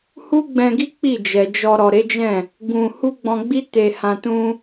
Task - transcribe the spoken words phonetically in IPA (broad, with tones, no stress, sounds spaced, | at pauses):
h u˦ ɡ͡b ɛ̃˧ ɡ i˦ k͡p i˦˨ d͡ʒ ɛ˨ d͡ʒ ɔ˧ ɾ ɔ˨ ɾ e˨˦ d͡ʒ ɛ̃˦˨ | ɡ ũ˧ h u˦ ɡ͡b ɔ̃˧ ɡ͡b i˦ t e˧ h ã˧ t ũ˦